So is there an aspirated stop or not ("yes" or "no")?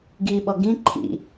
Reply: yes